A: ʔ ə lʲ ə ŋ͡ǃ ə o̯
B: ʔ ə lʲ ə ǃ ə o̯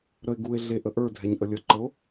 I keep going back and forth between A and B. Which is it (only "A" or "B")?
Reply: B